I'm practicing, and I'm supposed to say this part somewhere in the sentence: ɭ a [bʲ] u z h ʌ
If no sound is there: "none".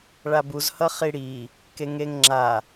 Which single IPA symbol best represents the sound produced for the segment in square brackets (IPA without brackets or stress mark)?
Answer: b